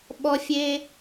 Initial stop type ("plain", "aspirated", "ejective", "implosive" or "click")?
implosive